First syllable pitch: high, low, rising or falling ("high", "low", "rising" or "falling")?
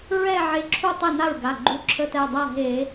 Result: falling